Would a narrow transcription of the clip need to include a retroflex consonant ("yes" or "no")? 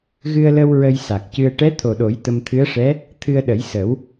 yes